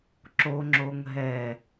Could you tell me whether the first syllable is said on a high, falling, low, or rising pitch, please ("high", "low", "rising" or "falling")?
high